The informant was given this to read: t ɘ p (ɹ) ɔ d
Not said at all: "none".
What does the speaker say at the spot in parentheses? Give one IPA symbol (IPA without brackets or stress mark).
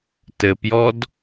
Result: j